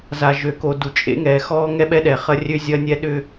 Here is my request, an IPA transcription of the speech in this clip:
z a˨ ʒ ø˨ k o˨ d u˨ t͡ʃʼ ḛ˦ ŋ ɛː˨ x ɔː˦ ŋ ɛ˦ ɓ ɛ˦ ɗ ɛ˨ χ ɐ˦ rʲ ø˦ zʲ ɐː˦ nʲ ɛ˦ ɗ ʏ˦

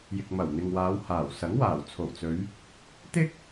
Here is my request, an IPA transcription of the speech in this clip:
j ɪ˨ k̚ m ɐ˨˩ w n̪ ɪ˨ ŋ w aː˨˧ w h aː˨˩ w s ɐ˨˥ ŋ w aː˨˩ w t͡sʰ o˨˩ w t͡s ɵ˨˧ ɥ | t̪ ɪ˥ k̚

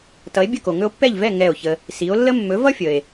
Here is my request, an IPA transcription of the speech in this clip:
t ʌ˩˥ e̯ bʲ ə˥˩ k o˩ ŋ ɵ˧ o̯ pː ɛ˥˩ ʎ v ɛ˥˩ ŋ ɛ˥˩ o̯ ç ə˧ | s i˩˥ o̯ lː ə˥ mː ɵ˩˥ v ʌ˥ fʲ ə˩ e̯

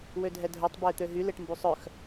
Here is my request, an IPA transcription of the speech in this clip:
w ø dʱ ɛ dʱ œ tˤ b œ ɪ̯ t̪ ø ɦ y l e ʈ m b u sˤ œ x

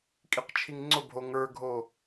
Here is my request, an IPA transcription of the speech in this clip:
kʼ i q t͡ʃʰ i ŋ ŋ͡ǀ ʊ bʱ o ŋ ə˞ ɡʱ o

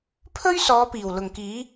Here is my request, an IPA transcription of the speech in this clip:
pʰ ɵ˥ ɥ s ɔː˨˧ p iː˨˩ w l ʊ˨˩ ŋ k iː˨˥

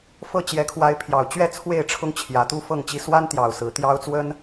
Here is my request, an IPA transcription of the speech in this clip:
f ɤ˥˨ t͡ɕ j ɛ˨˦ kʰ w a˨˦ ɪ̯ pʰ j ɑ˨˩ ʊ̯ t͡ɕ ɥ ɛ˥˨ t͡sʰ w e˥˨ ɪ̯ ʈ͡ʂʰ ʊ˦ ŋ t͡ɕʰ j ä˨˦ t̪ u˦ f ɤ˥˨ ŋ t͡ɕ i˦ s w a˦ n t̪ j ɑ˨˩ ʊ̯ s ɹ̩˨˦ t̪ j ɑ˦ ʊ̯ t͡s w ə˦ n

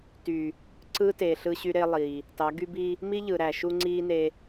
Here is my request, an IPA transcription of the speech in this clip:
t yː˨ | ǀ ɯ˦ t e˨ ɬ ɯ˦ ɕ y˦ ɾ e˦ lˠ iː˨ | t ɑ˨˦ ɡ y˦ b iː˦ | m i˦ ʎ ɯ˨ ɾ æ˨ ʃ u˦ ŋ͡ǀ iː˦ n e˦

